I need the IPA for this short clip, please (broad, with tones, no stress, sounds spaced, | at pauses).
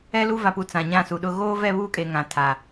ɛ˦ l u˦ v a˨ p u˨ t͡s ã˨ ɲ ã˦˨ s u˨ ɗ ʊ˦ ɣ oː˦ v ɛ˦˨ β uː˦ kʼ e˨ ŋ ã˨ tʰ a˨